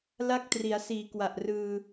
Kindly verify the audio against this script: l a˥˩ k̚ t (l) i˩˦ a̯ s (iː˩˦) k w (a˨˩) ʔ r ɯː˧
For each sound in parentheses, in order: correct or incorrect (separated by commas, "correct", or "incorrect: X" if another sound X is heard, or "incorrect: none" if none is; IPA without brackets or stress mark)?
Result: incorrect: r, correct, correct